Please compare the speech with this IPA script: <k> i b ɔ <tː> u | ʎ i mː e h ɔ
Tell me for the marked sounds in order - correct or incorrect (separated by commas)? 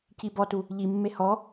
incorrect, incorrect